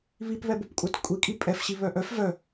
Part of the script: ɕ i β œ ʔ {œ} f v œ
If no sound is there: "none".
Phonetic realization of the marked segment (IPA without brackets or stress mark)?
œ